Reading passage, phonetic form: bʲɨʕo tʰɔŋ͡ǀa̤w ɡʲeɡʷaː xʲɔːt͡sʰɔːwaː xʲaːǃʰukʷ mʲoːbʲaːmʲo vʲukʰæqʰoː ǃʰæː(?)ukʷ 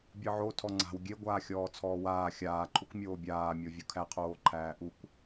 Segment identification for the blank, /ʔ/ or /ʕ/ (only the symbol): ʔ